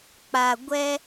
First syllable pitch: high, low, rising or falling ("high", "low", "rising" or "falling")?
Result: low